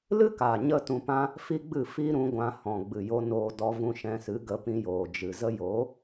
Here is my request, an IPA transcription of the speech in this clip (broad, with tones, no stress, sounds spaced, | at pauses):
l ɨ˦ k a˨ ɲ ə˧ t ũ˧ p ã˦ | f i˦ ɡ͡b ɨ˦˨ f i˦ ɾ ũ˧ ɡʷ ã˧ h ɔ̃˨ ɡ͡b ɨ˨ j o˧ n oː˦ d ɔ˦ v ũ˦ ʃ ɛ̃˧ s ɨ˨˦ ɡ ə˨˦ p ĩ˧ j oː˨ d͡ʒ ɨ˨ z ə˦ j o˨˦